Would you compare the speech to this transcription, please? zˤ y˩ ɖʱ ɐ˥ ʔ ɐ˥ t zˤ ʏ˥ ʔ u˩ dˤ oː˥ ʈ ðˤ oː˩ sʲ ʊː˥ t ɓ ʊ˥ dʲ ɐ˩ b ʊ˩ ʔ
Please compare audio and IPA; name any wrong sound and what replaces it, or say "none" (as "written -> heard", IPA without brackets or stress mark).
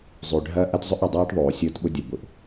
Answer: none